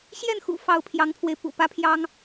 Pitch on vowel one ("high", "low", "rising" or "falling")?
falling